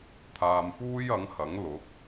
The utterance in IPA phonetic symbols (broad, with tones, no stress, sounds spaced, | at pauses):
t̪ʰ aː˧ m f uː˥ j ɐ˨˥ ŋ h ɐ˨˥ ŋ l ʊ˨˥ k̚